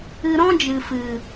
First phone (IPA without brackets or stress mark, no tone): ɨ